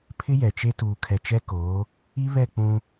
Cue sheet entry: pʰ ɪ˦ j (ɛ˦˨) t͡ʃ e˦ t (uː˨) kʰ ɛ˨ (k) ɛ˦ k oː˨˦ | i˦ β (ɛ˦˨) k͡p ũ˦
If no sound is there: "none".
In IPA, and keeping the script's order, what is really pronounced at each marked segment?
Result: ɛ˨, uː˨, t͡ʃ, ɛ˦˨

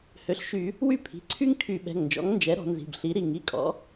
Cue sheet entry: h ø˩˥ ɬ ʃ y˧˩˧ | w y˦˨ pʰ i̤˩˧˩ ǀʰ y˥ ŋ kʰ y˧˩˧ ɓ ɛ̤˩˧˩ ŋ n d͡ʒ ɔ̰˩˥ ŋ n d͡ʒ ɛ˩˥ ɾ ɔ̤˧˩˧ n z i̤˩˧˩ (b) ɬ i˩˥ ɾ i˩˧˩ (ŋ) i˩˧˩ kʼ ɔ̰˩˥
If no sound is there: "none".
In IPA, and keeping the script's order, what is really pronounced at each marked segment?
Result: b, ŋ

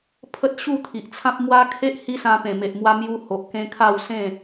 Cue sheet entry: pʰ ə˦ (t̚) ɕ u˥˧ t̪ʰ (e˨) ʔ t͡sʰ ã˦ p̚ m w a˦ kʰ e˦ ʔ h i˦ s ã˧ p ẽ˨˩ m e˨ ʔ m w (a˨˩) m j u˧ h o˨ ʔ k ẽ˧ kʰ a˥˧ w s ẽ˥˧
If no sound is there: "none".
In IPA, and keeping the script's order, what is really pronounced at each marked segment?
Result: t̚, i˨, a˧

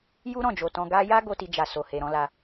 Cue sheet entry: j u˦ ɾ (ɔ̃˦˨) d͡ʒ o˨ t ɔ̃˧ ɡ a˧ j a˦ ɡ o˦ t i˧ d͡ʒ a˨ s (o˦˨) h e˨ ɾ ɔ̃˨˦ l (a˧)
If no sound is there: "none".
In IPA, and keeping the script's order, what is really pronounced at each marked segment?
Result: ɔ̃˦˨, o˨, a˧

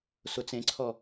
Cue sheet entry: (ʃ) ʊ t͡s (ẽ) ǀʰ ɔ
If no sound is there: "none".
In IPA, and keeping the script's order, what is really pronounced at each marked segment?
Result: s, ẽ

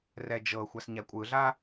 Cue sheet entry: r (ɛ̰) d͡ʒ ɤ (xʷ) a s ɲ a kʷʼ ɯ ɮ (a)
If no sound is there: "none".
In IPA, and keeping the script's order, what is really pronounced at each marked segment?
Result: ɛ, xʷ, a

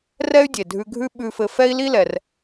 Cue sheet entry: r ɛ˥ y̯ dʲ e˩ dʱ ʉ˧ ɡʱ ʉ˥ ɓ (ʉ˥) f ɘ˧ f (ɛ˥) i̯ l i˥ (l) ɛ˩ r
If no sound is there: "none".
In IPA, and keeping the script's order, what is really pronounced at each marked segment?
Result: ʉ˧, ɛ˥, l

